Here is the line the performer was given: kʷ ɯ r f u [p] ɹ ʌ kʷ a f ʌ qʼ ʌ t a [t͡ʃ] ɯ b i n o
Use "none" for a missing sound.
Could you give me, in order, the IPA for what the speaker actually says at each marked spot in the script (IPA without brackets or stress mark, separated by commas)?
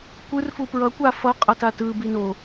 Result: p, t